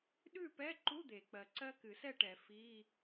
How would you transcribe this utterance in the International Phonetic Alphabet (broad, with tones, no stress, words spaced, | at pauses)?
ɗʉ˥˨pɛ˧˥˧ǃu˧˥˧ d̪e˨˩˦k͡pɜ˨˩ ǀɜ˦˥kɨ˨˩˦sɛ˥˨ʈɛ˨˩˦ fi˧˥˧